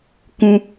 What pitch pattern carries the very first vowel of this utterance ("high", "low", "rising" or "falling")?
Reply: high